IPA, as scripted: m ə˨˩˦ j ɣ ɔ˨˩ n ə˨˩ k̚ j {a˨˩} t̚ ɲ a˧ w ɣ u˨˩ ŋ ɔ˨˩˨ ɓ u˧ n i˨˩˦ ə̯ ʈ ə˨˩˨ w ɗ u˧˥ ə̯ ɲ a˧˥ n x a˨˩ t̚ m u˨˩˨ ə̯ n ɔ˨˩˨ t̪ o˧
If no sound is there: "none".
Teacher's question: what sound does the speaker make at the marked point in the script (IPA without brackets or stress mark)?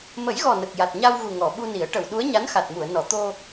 a˨˩